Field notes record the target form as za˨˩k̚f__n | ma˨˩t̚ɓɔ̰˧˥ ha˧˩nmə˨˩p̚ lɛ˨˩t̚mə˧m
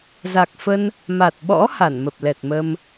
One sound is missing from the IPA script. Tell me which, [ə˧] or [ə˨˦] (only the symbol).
ə˧